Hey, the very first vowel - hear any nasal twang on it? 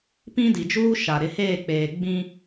yes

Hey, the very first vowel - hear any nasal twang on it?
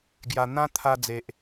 no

